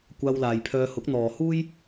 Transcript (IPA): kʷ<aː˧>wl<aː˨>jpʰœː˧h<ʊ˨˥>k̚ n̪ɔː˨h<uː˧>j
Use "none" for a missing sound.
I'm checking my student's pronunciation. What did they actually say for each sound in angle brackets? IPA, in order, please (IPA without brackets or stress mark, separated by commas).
aː˧, aː˨, ʊ˨˥, uː˥